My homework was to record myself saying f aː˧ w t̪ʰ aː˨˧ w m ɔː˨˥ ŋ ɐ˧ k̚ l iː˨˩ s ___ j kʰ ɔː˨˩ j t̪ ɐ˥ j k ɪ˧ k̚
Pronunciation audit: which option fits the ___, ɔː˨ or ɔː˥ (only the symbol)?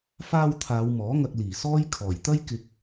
ɔː˥